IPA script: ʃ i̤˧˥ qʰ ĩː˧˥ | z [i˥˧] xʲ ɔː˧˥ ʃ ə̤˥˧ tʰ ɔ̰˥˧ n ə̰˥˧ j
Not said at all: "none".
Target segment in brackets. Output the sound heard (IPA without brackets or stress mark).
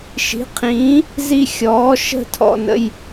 i˥˧